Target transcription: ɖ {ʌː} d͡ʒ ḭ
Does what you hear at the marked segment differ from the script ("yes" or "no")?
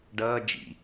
no